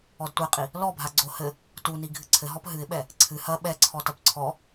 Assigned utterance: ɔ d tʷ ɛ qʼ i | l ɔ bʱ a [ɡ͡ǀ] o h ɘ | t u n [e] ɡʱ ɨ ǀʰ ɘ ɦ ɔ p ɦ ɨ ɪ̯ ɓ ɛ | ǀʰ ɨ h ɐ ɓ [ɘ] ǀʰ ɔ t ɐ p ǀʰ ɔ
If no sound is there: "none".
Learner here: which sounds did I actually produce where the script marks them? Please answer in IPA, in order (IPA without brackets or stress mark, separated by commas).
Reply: ɡ͡ǀ, i, ɛ